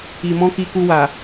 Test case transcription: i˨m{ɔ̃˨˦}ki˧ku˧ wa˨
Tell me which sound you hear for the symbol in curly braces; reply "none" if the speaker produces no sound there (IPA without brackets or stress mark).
ɔ̃˨˦